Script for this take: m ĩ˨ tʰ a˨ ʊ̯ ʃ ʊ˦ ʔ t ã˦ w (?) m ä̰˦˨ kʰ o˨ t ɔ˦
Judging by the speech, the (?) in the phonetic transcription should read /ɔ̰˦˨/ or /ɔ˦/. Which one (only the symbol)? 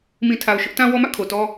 ɔ˦